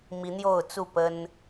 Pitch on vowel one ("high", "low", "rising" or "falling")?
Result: rising